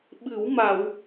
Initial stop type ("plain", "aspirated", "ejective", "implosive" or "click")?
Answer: implosive